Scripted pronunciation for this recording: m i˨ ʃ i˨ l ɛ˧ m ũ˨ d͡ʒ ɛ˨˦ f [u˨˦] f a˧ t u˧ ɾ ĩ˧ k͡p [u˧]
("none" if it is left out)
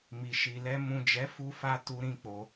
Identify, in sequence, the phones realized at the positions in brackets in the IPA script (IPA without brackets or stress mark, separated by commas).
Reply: u˧, o˧